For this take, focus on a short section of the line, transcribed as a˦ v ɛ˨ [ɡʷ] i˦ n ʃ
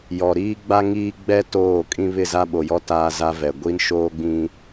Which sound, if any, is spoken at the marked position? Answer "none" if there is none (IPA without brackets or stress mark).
ɡʷ